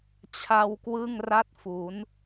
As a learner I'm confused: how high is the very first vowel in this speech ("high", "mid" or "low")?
low